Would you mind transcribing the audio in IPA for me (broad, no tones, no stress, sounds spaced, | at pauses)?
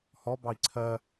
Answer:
h ɔ b ɑ i̯ ǀʰ ɜ